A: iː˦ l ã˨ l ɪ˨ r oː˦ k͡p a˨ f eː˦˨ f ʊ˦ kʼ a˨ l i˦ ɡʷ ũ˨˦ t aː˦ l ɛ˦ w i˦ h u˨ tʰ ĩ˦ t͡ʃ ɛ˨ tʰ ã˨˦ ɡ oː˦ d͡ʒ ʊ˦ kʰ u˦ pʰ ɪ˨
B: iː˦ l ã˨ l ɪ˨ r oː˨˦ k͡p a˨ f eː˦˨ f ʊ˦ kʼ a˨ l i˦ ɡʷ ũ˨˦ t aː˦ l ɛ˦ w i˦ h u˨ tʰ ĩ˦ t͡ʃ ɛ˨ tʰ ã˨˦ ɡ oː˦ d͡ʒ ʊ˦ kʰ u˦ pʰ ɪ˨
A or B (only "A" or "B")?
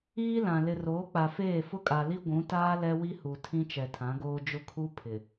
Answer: B